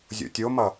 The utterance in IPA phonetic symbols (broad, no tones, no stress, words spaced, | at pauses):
zʲo̰tʲomʌ